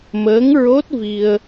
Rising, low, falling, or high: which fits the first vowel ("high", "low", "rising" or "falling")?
rising